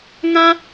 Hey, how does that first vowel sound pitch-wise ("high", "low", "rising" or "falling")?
high